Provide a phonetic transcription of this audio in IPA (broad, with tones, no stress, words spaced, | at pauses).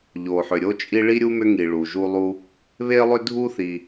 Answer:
ʎo˩ħʏ˩ ɾʲo˦ t͡ʃʼi˦ɭi˥ɾʲu˥mʏ˦ ŋi˨ɭu˩ ʒu˥lˠu˥ | βe˥lˠʏ˥ dʱu˥θi˨